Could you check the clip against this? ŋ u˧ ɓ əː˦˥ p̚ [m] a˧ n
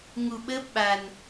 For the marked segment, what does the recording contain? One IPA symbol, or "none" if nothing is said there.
ɓ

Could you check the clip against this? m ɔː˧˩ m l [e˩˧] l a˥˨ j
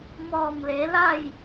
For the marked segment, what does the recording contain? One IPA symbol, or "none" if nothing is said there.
e˩˧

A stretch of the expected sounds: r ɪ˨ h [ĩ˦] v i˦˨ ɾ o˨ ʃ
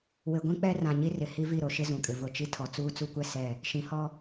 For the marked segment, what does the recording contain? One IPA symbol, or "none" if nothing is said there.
i˦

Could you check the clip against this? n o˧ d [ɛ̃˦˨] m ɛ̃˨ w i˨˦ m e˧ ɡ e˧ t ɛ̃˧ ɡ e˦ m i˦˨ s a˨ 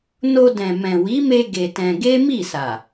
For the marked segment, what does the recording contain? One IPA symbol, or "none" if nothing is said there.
ɛ̃˨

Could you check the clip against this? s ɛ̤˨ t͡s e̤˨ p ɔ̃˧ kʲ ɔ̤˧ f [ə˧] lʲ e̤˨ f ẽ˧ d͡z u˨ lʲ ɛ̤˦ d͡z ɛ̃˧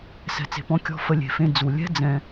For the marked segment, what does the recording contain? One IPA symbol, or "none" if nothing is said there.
ə˧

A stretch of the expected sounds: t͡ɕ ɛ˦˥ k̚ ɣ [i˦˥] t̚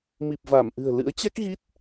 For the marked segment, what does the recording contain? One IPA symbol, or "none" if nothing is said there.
i˦˥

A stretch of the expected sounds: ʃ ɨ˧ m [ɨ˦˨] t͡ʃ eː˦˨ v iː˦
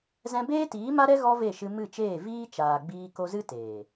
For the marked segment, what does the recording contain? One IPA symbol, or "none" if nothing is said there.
ɨ˦˨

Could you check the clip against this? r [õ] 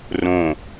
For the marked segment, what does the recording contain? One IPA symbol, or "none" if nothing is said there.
õ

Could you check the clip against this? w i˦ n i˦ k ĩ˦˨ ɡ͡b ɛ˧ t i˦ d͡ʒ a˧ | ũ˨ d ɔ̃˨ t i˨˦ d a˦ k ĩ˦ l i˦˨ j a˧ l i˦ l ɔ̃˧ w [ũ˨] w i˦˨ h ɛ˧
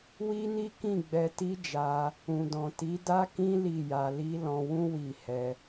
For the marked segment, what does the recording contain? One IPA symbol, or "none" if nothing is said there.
ũ˦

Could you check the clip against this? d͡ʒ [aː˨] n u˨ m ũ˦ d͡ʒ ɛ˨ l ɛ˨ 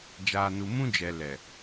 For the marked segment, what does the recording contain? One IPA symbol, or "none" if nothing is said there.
aː˨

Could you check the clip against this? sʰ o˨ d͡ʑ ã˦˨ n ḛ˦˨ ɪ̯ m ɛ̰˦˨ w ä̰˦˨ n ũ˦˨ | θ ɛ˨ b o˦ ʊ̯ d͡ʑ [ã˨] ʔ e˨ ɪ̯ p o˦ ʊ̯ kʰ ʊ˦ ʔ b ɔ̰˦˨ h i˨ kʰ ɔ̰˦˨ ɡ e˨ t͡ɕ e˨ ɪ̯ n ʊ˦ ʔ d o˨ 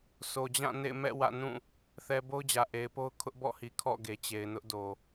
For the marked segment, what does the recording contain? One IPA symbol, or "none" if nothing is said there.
ä˨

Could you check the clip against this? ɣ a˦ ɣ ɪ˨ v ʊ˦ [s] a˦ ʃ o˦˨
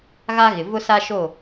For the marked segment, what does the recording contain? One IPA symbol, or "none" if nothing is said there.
s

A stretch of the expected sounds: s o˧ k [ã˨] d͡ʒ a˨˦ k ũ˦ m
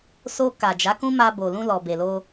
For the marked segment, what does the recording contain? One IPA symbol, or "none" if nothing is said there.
a˨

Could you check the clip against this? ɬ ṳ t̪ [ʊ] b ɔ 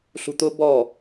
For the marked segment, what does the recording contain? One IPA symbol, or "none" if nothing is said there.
ʊ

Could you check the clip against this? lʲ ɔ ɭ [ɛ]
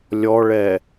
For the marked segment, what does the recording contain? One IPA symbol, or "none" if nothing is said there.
ɛ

